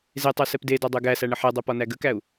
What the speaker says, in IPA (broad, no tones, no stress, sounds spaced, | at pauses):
z e tˤ œ s ɛ p d e d ɒ dˤ œ ɡ æ s æ ɳ ə ħ ɛ dˤ e p ɒ n æ ɡ ə k æ u̯